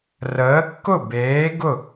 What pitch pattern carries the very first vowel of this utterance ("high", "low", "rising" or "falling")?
rising